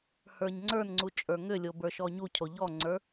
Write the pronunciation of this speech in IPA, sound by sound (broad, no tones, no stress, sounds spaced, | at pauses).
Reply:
h ə˞ ɲ ŋ͡ǀ ə˞ n ŋ͡ǀ u t͡ʃʼ ə˞ ŋ ʏ lʲ o b ə˞ ʃ ɔ ɲ u cʰ o ʎ ɔ ŋ͡ǀ ə˞